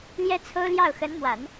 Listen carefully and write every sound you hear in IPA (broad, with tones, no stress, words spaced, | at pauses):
ljɛ˥ t͡sʰo˥ʊ̯ljɑ˥˩ʊ̯ xə˧˥nmwa˨˩˦n